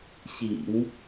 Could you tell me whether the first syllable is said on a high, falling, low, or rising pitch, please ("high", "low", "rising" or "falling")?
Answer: low